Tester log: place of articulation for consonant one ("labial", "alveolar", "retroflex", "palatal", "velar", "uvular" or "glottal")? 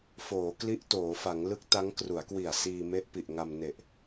labial